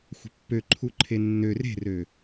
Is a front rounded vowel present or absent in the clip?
present